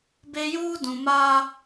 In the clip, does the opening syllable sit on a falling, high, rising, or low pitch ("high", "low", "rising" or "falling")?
high